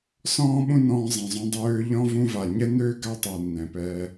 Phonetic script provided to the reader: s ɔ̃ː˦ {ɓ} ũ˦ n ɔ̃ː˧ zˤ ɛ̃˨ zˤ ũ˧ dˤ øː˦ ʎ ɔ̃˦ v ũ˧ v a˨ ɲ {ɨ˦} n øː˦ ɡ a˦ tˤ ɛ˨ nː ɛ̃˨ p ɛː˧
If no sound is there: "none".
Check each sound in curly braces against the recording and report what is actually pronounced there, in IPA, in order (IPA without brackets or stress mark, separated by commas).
ɓ, ɛ˦